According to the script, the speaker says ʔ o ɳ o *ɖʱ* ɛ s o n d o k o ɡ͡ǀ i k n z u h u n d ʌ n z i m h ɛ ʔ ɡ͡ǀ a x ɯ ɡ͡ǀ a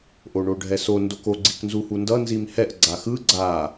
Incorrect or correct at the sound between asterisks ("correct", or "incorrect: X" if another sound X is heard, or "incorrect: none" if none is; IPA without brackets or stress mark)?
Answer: correct